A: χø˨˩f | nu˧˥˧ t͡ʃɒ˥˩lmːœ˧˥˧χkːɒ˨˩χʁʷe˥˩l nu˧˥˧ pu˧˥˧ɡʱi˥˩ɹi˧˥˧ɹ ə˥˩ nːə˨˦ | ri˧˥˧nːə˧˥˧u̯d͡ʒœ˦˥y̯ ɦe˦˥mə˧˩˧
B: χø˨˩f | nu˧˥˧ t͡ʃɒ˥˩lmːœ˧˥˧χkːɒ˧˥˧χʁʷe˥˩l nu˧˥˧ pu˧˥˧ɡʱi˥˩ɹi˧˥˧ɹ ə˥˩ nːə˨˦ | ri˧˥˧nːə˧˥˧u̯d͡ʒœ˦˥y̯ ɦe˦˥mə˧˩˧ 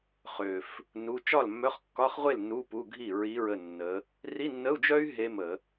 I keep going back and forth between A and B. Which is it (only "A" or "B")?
B